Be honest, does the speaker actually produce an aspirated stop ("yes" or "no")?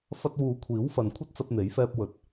yes